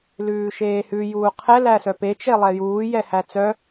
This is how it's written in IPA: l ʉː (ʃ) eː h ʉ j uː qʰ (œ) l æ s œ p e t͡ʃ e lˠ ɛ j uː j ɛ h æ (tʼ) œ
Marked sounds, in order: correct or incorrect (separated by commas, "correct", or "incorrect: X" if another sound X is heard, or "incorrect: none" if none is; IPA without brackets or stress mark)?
correct, incorrect: ɛ, incorrect: t͡s